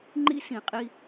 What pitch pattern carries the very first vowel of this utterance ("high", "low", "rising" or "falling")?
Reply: high